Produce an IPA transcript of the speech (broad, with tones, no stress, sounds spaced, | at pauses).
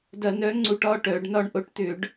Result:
d ɐ˧˩˧ n œ˨˥ ŋ͡ǀ u˧˥˧ ʈ ɒ˧˥˧ ʈ œ˧˩˧ ɖ n ɒ˧ ɳ ʔ o˨˥ ʈ t̪ ʏ˧˩˧ ɖ